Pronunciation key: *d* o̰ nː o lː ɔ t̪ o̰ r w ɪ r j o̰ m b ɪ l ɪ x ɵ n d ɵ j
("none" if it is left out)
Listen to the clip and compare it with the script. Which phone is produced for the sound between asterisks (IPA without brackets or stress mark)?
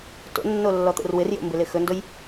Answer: t